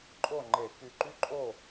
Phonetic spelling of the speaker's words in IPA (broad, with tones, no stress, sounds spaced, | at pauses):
ǃʼ o˥˨ ŋ͡ǃ e˧˩˧ k y˧˩ ǃ y˥ ǃʼ o˥˨